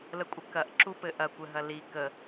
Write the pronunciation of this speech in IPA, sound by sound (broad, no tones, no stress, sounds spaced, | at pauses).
l ə kʷʼ ə k ɐ ʔ ǁ u p ɘ ʔ ɐ kʷ ɘ ɦ ɐ l i k ə